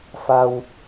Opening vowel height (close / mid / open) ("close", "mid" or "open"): open